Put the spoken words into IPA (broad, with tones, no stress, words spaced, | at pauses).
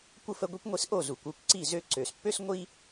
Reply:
kʷə˥˩fə˧ ɡʷi˥kʷŋʷi˧s ʔo˥˩zu˩kʷ u˥˩kʷǀi˥˩ zø˧ǀø˩spːø˥s ŋʷi˥